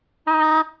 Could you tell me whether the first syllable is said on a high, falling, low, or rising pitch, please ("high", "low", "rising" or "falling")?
high